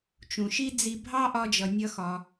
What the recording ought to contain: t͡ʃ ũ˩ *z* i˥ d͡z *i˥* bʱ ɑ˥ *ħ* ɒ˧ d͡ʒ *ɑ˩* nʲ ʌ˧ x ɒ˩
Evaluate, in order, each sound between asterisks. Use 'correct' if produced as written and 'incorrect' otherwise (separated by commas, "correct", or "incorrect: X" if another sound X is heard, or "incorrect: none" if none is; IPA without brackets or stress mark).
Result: incorrect: ʃ, incorrect: i˧, incorrect: ʔ, incorrect: ʌ˩